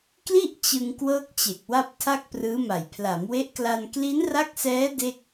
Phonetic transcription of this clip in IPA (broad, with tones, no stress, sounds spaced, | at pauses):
k l i˥˩ ʔ t͡ɕ ɯ˧ ŋ k w ɤː˥˩ k̚ t͡ɕ e˨˩ k̚ w a˥˩ p̚ tʰ a˥˩ k̚ p r ɯː˦˥ m a˨˩ j pʰ l a˩˦ m w e˦˥ ʔ k l a˧ n k l i˦˥ n r a˦˥ k̚ s ɛː˦˥ d e˥˩ k̚